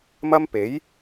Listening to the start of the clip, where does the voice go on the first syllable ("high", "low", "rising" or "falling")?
high